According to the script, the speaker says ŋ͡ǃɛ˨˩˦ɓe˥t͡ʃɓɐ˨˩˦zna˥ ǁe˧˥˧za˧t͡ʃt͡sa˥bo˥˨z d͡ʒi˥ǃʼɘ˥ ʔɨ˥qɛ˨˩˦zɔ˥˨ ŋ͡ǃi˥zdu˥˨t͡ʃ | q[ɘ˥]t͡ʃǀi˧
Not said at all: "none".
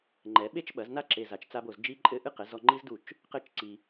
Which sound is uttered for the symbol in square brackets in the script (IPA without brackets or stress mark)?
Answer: ɘ˥